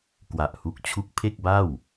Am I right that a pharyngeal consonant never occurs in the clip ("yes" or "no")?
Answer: yes